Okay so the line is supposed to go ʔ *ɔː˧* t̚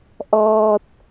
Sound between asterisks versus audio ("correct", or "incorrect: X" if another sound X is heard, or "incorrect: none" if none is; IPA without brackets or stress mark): correct